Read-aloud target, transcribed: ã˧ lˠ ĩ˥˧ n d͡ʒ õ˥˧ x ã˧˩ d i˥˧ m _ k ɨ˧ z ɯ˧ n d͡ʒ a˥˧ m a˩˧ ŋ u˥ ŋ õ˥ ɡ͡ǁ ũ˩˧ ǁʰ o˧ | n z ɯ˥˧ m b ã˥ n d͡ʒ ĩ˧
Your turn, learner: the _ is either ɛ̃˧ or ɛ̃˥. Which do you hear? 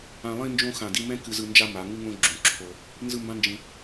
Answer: ɛ̃˥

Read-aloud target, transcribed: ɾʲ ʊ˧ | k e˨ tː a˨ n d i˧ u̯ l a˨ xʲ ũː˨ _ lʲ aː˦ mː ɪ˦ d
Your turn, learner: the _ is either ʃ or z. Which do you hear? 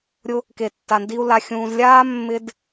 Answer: z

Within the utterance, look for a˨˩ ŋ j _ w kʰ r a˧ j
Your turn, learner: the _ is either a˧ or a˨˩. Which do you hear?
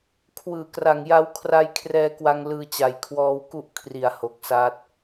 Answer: a˧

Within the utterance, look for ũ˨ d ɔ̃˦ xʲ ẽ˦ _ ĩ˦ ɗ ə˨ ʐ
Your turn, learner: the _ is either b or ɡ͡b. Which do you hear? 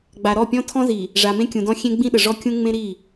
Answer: ɡ͡b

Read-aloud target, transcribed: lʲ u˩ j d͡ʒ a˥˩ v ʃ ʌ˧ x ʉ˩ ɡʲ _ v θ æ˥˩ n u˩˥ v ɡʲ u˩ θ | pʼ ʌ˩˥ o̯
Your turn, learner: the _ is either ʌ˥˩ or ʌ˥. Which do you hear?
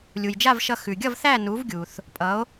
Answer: ʌ˥˩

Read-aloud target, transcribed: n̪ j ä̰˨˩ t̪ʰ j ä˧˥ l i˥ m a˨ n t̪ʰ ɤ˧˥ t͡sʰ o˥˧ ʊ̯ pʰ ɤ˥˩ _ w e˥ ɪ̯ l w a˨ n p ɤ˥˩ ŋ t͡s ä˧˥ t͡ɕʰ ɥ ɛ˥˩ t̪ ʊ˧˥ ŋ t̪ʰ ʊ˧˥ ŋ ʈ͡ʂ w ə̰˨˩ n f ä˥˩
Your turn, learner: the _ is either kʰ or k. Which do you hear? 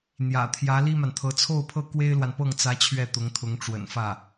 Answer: k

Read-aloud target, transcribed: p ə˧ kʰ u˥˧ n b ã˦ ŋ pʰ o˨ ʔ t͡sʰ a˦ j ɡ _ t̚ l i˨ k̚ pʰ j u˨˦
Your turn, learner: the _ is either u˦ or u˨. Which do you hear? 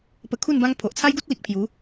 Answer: u˦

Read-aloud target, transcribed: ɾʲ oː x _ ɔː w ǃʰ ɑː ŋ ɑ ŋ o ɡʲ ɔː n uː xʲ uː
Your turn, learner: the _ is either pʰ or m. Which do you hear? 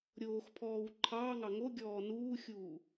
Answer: pʰ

